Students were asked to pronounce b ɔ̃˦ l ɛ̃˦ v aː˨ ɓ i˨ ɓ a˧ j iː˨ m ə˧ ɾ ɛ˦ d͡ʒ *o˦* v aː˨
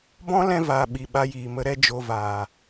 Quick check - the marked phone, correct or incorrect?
incorrect